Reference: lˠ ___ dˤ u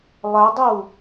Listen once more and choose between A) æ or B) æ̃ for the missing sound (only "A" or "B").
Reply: A